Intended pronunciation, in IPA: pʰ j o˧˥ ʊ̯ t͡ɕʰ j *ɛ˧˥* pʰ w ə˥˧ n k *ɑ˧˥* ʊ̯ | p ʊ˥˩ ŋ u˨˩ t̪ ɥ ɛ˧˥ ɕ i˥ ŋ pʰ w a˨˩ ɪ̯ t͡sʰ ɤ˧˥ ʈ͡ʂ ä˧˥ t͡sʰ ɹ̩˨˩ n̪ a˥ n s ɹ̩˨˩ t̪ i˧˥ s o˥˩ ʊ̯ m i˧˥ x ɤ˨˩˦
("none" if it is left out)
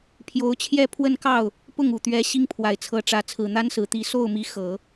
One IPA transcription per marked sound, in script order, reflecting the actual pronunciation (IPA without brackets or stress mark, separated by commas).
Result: ɛ˥˧, ɑ˥˩